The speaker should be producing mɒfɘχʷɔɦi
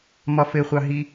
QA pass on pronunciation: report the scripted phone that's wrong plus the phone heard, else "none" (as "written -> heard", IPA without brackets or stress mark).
ɔ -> ɑ